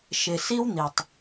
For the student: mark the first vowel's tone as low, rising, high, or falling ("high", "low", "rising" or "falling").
low